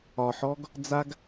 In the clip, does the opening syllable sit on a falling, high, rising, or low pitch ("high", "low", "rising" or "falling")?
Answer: low